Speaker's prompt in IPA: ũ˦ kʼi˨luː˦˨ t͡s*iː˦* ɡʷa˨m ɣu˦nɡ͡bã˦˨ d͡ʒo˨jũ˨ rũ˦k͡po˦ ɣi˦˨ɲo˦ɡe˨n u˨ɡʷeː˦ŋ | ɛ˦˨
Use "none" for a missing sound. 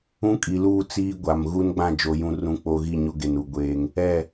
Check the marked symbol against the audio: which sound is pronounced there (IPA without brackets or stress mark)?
iː˦